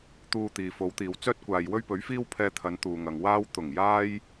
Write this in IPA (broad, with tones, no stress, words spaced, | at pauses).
t̪uː˧t̪iː˨ fo˨˧wt̪iː˨w t͡sœː˥t̚ kʷaː˨jwɵ˥ɥpɵ˨˥ɥ fiː˥wpʰɛː˧t̪ʰɐ˨˧n t̪uː˨ŋɐ˨ŋ waː˧wt̪ʊ˨˩ŋ jaː˥j